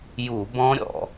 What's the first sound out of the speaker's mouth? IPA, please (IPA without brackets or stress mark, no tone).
j